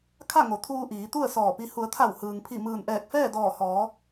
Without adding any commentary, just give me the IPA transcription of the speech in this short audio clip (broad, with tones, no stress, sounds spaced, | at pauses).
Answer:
kʰ a˥˨ ŋ o˩˧ t̪ʰ uː˧ ʔ iː˩˧ t̪ u˥˨ ə̯ s ɔː˧˩ p i˧ h u˩˧ ə̯ t̪ʰ a˧˩ w h ɯː˩ ŋ pʰ i˧˩ m ɯː˧˩ n ʔ ɛː˧˩ k̚ f ɛː˥˨ d ɔː˧˩ h ɔː˩˧